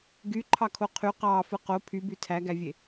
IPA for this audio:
ɡ y ǃʰ ɑ kʰ o qʰ y q ɑː f ɯ q o pʰ y b y tʰ æ ɡ æ vʲ e

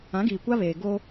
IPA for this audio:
ã˨˦ ɡ iː˨ kʷ a˦ β eː˨ ɡ oː˦

